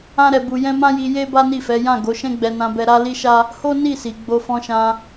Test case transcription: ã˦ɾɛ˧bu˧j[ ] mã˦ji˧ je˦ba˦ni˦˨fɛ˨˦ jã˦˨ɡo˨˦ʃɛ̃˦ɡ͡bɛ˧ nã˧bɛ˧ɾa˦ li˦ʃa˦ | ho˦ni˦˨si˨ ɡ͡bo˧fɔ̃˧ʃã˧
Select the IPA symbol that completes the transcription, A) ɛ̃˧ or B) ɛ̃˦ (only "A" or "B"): B